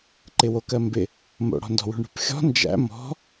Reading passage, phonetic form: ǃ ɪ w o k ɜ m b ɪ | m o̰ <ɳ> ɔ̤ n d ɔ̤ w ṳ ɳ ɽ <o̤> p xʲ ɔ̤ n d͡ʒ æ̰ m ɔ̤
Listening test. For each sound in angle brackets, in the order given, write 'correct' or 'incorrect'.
incorrect: ɽ, incorrect: ṳ

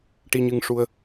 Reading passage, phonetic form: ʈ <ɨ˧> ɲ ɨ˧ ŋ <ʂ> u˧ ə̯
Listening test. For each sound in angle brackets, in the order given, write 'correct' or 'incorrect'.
incorrect: i˧, correct

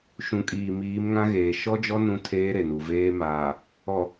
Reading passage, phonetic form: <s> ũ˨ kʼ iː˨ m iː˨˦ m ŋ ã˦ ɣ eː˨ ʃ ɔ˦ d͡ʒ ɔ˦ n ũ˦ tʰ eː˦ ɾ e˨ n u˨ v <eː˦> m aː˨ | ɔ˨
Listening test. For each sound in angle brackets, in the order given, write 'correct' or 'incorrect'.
incorrect: ʃ, correct

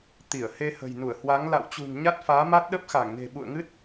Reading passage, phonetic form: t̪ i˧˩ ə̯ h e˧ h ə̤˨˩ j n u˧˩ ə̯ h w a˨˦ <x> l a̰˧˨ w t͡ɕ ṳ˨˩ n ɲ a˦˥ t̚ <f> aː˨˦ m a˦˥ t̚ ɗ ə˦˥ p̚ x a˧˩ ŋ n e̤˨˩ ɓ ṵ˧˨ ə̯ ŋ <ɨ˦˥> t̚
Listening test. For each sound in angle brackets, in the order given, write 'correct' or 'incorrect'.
incorrect: ŋ, correct, correct

